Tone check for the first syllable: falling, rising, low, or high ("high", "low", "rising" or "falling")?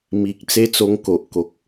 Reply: low